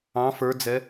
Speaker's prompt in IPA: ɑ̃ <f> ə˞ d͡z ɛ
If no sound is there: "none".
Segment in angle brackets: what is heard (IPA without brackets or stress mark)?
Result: f